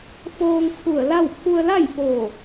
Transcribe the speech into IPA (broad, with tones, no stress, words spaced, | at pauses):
foː˧ŋkʰu˧˩ə̯la˥˨w pʰu˧ə̯la˥˨jfo˧˩